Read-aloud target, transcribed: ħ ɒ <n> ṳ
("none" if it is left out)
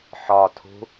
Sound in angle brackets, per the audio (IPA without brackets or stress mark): tʰ